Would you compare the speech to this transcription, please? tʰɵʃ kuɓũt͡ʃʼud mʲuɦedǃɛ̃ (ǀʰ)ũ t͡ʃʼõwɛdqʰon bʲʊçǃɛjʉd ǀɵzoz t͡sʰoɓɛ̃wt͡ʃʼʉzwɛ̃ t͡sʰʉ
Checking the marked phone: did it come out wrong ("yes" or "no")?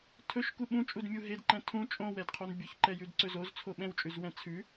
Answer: yes